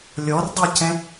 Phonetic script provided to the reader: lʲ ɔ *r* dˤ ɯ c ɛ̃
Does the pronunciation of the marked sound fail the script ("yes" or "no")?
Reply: no